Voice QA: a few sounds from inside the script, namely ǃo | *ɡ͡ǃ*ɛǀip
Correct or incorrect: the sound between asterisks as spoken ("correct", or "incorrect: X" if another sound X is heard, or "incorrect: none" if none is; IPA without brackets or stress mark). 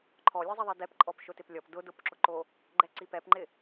correct